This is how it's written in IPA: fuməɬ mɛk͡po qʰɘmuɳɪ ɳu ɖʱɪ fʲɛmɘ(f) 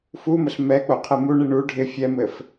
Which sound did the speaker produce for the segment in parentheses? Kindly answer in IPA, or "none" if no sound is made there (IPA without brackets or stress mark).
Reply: f